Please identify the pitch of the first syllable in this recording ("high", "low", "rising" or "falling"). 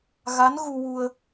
rising